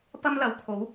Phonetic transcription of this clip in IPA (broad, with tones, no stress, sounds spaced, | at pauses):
p ɐ˥ m l ɐ˨ w kʰ o˨˥ w